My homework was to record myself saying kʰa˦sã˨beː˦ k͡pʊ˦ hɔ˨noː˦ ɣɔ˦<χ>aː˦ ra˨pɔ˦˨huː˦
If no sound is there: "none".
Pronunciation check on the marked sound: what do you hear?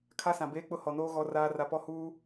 r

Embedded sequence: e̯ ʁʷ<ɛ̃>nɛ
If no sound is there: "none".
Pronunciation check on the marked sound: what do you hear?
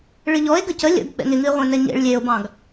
ɛ̃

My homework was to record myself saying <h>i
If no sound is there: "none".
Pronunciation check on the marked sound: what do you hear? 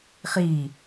χ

